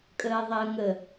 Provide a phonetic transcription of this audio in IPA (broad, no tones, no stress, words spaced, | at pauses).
kʼəːðˤəːŋə